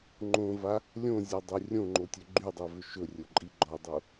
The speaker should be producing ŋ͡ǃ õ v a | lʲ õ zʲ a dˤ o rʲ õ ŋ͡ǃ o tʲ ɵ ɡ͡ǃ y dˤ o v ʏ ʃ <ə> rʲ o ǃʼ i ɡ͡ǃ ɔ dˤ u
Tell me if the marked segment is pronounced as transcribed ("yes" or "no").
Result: no